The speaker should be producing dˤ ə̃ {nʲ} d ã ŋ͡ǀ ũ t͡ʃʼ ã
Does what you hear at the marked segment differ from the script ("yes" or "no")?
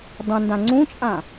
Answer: yes